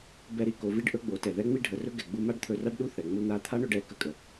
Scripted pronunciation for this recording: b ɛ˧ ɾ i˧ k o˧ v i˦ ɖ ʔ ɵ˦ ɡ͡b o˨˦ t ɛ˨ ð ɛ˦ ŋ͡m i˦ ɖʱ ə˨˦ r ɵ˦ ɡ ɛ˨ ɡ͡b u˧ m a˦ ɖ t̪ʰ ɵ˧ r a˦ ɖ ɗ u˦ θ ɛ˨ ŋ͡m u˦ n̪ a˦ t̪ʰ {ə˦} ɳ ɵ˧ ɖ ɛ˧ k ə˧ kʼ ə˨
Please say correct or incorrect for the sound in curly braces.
incorrect